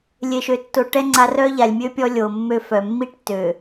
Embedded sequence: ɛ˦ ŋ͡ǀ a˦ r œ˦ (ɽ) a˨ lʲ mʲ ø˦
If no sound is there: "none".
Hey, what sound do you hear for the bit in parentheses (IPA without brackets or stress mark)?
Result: ʎ